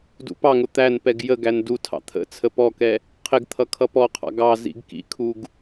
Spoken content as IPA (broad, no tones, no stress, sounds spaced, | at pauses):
d ṵ p ɑ ŋ ʊ t̪ æ n p ɛ ɡ j ə ɡ æ n d u tʰ ɑ̰ t̪ʰ ə̰ t͡sʰ ə p ɔ k ɛ | qʰ ɪ ɡ t̪ʰ ʌ kʰ ʌ p ɔ qʰ ɑ̰ ɡ ɑ z ḭ ɡ k ḭ kʰ u ɡ